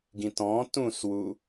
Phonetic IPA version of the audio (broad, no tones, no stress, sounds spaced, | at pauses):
ɡ ĩ t ɔ̃ t ũ s w u